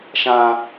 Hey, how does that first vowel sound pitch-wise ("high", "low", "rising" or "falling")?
high